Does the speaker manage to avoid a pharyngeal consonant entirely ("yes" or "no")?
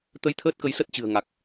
yes